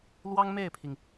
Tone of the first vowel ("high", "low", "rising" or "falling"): high